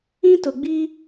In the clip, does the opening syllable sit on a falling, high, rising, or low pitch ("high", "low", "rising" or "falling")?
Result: high